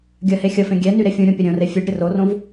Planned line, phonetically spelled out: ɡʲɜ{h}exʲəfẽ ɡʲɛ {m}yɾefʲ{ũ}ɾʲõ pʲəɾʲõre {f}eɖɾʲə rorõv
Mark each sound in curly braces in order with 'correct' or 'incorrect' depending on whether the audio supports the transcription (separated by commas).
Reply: correct, incorrect, correct, incorrect